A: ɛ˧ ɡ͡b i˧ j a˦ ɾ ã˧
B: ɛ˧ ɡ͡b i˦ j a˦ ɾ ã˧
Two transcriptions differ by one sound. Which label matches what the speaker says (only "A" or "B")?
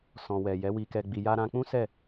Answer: A